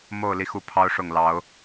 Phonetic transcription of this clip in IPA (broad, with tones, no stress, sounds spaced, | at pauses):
m o˥˨ ʊ̯ l i˦ x u˦ pʰ ɑ˦ ʊ̯ ʂ ʊ˥˨ ŋ l ɑ˨˦ ʊ̯